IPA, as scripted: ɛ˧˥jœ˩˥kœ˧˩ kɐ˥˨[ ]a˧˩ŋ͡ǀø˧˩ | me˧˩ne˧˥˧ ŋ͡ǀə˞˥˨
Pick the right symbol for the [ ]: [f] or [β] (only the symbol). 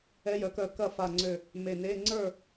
f